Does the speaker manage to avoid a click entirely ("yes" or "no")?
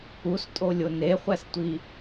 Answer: yes